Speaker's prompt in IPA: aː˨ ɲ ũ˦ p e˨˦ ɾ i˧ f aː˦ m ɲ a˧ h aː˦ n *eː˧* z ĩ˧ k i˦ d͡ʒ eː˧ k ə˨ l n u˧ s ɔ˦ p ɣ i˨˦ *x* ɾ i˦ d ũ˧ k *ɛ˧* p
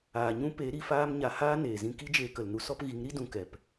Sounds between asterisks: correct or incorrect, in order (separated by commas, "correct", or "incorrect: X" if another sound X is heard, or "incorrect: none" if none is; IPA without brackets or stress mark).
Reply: incorrect: eː˨, incorrect: ŋ, incorrect: ɛ˨